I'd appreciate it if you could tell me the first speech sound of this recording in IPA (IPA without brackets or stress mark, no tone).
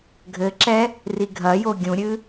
ɡʱ